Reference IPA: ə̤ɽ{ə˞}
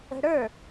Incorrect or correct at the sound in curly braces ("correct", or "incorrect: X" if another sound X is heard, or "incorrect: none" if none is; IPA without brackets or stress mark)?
correct